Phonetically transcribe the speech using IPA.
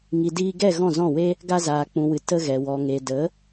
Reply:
ŋi˨diː˧ɡɛ˦˨ ɣɔ̃˦˨zɔ̃˦˨we˦ | ɡa˧zaː˨k͡pũ˨wɨ˨ tə˧ ɣɛ˨ wɔ˨ŋe˨də˨˦

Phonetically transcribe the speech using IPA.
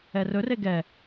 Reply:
ɛrɵre ɡɛ

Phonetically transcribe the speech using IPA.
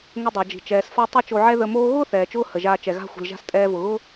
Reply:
ŋə˧dˤa˩d͡ʒi̤˩ t͡ʃɛː˩sfa˥ tˤɛ˥t͡ʃo˧ʕɛ˥ ðə˧moː˥ ɣʊː˥θɛː˩t͡ʃʊː˧ hə˩ʒaː˧ t͡ʃɛ˩ɣa̤˥xʷi̤˩lʒa̤˥s tʼɛː˧vʊ˩ɣʊ˥

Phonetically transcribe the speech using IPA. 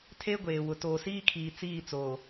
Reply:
tʰe˦ɡʷeː˨wʊ˨ toː˨siː˦kʰiː˨ t͡siː˦˨t͡soː˨

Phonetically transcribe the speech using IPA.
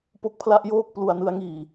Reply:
po˦˥k̚pʰla˥˩ʔjoː˥˩k̚ plu˧a̯nɯ˦˥a̯ŋiː˨˩

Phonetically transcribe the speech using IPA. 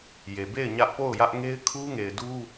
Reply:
je˨be˦˨ɪ̯ ɲä˦ʔpo˦˨ʊ̯jä˦ʔ ŋe˦ɪ̯kʰu˦ŋe˨ɪ̯du˦

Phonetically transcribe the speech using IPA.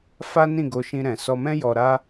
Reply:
fa˦nĩ˦˨ɡo˧ʃĩ˧ ɾɛ̃˨sɔ˧mɛ̃˦ jɔ˧ɾa˦

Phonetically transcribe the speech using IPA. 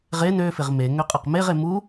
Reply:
ʁen øfɪʁ me ŋøqʼɐqmeʁe mu

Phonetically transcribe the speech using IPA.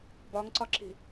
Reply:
bɒŋǀɒǁi̤

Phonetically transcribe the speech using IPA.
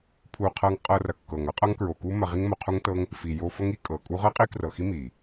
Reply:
pʰu˨ qʰɤ˧ŋqʼɤ˧ rɐ˨kːɤ˨ŋ ɐ˦qʼɐ˦ŋkɹo˨ku˦ mɐ˧ʁi˦ŋ mo˧qʰu˦ŋtɤ˦ŋ | fi˨jo˧ fɤ˦ŋi˦ kʼɤ˨kʼu˦ ʁɤ˦qʼi˦krɤ˨xi˦ mi˨

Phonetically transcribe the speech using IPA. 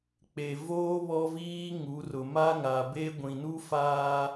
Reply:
k͡pe˨ voː˦ βɔ˦viː˦ ŋu˨˦rʊ˨ ma˦ŋa˨be˦ ɡʷĩ˨nu˦ faː˦

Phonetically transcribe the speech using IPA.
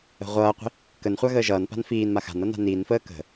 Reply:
ə̤ʁʷʌːqʷi̤ | kənχʷa ɣəːʒʌːnpa̤n fiːnma xa̤nʌ na̤niːnfəː kə̤

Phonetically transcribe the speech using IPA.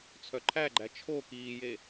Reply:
t͡sʰœǃʰæɡ͡ǃæ t͡ʃʰo kiːje

